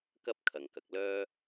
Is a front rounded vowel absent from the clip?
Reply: no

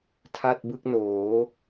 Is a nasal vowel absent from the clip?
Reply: yes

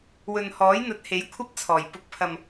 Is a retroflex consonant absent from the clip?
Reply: yes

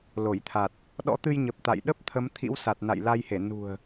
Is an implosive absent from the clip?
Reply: no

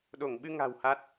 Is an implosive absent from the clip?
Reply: no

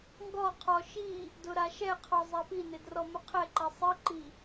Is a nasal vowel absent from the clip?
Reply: yes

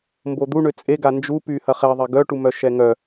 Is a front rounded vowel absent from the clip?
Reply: no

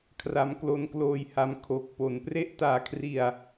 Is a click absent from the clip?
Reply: yes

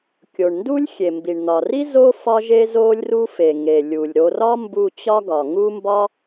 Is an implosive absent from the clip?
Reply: yes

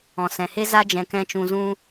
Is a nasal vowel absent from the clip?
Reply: no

